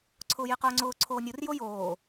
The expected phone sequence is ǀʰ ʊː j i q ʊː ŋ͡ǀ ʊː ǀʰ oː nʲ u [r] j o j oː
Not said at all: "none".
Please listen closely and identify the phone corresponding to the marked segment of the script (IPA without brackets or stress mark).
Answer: r